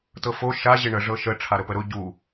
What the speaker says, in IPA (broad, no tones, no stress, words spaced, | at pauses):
tɤfo ʃa ʑɪɳə ʐɤʃə ʈ͡ʂʰaɾəpəɾʊ ɟu